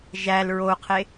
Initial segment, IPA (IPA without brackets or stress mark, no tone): ʒ